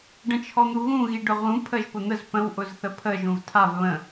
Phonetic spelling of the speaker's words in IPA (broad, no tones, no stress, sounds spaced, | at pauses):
ɖ ə̃ t͡ʃʰ ɔ n̪ u ɣ ũ ɣ i ɖ ʊ ʁ ũ pʰ ə ʒ p ʊ n̪ ə z p ə̃ w ʔ ʊ z θ ə pʰ ə ʒ ũ v tʰ a v β ə̃